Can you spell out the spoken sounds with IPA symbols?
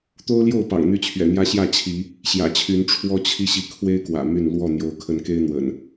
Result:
t̪o˦ʊ̯ljo˥˨ʊ̯ pɑ̰˨˩ŋn̪y˥˨t͡ɕʰɥɛ̰˨˩n̪jä˦ ɕjä˥˨t͡ɕʰi˨˦ | ɕjä̰˨˩t͡ɕʰy˨˦n ʈ͡ʂʰwɔ˦t͡ɕʰi˦ ɕi˨˦kʰwe˦ɪ̯ kwä̰˨˩my˥˨n lwɔ˥˨n̪jo˨˦ʊ̯ kʰə˨˦nke˦ɪ̯n̪wə̰˨˩n

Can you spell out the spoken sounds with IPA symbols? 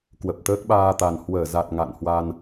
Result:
kwə˨˩p̚t̪əː˦˥k̚ɓaː˧t̪a˨˩n hwəː˧˩za˨˩t̚ ŋa̰˧˨nhwa˧n

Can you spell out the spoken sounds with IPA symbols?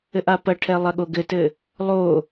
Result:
ɘʔapɐʈʰɛ lˠɐɠoɡɘtɘ | lˠo

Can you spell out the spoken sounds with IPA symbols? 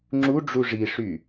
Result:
ŋ͡ǁuɖ͡ʐu ʐiʂy

